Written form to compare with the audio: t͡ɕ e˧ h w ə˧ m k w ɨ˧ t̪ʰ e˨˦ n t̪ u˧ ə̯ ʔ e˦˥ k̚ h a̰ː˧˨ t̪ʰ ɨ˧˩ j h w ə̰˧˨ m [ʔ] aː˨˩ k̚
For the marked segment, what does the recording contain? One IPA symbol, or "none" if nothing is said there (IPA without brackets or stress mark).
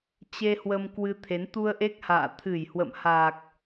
h